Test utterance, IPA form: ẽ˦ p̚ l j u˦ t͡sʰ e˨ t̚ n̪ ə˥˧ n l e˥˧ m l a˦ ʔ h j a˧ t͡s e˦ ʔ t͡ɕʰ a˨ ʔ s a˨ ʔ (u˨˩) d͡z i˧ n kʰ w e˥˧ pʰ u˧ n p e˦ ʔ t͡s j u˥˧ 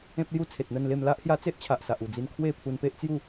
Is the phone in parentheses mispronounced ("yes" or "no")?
no